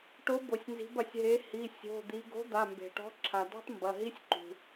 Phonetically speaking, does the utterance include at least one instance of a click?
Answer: yes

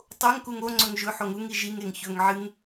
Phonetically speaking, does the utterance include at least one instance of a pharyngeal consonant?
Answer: yes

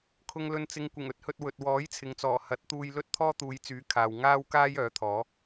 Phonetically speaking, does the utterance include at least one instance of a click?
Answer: no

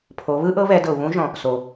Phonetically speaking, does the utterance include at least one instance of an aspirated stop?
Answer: yes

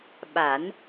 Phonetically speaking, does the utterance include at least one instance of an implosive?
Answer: yes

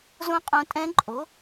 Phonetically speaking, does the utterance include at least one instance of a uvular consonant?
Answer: yes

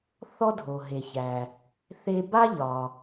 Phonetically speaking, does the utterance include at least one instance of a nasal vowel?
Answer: no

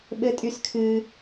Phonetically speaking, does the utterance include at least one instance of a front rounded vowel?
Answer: yes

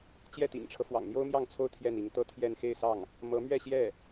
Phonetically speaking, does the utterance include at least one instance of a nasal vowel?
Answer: no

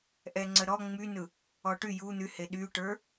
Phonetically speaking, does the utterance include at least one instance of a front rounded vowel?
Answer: yes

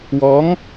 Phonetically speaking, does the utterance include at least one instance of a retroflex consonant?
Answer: no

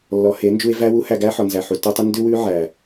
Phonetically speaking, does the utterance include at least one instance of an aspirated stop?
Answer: no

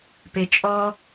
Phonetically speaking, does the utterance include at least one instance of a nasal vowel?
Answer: no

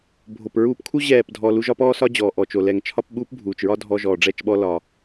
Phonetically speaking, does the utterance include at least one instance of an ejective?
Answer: no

